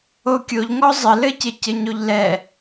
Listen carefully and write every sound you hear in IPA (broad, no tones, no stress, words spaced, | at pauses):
okʲoʎ ŋɔzˤɘlɘcɪ cɘɲoʎlɛ